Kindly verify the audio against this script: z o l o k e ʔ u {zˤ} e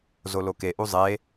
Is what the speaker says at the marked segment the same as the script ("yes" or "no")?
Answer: yes